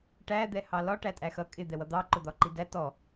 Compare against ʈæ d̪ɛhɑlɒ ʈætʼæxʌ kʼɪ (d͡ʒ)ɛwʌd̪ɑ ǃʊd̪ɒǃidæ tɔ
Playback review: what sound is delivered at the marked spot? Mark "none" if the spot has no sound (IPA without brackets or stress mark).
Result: d̪